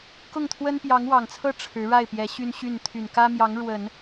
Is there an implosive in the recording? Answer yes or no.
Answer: no